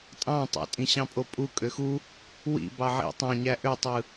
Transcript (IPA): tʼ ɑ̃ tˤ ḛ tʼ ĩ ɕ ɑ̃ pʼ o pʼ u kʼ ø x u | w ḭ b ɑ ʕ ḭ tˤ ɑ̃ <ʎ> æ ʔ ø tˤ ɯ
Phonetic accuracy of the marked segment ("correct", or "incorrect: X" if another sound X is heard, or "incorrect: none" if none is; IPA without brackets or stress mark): incorrect: ɲ